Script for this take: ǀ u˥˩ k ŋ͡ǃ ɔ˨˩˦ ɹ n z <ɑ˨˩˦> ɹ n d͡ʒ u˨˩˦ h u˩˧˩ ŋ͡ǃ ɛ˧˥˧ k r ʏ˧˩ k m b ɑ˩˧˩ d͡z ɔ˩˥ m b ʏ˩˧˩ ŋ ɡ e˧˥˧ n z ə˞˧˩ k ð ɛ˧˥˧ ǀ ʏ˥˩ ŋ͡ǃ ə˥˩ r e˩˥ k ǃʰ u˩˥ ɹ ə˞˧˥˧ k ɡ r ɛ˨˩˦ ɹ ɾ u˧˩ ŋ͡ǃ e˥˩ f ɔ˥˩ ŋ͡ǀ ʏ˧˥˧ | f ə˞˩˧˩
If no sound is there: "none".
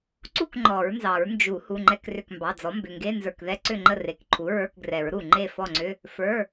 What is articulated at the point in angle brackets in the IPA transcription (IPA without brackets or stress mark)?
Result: ɑ˨˩˦